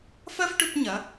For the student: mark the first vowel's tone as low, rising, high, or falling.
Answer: high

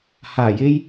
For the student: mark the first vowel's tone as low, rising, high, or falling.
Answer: low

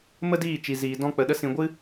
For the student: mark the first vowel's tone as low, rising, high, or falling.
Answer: high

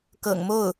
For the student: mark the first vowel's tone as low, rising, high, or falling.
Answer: low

